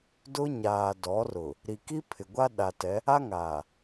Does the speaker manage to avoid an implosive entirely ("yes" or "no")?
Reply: no